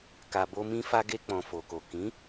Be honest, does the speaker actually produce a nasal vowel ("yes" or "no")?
yes